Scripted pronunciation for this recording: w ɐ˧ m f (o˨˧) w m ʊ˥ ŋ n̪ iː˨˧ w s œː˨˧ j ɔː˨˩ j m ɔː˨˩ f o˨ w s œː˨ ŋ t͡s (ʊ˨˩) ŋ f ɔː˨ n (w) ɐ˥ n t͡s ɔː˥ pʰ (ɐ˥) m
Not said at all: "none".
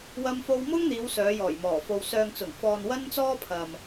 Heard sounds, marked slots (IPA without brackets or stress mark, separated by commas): o˧, ʊ˨˩, w, ɐ˨